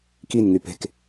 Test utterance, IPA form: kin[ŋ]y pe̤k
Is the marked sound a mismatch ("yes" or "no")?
no